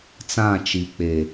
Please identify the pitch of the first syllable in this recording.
falling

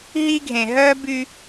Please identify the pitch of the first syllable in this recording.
high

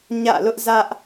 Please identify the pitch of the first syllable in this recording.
falling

